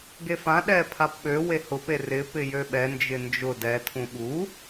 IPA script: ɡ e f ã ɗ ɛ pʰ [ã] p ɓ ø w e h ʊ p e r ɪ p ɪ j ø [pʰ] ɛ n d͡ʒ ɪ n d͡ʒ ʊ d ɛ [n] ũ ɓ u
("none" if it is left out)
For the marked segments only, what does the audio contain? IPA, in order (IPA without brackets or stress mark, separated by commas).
a, ɓ, tʰ